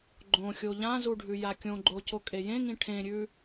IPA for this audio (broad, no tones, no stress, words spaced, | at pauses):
ɡ͡ǃõ xʲoʎãzu ɖʱʉjakʲõɡ͡ǃo cokʼejẽŋĩ ʈʰẽɾʲʉ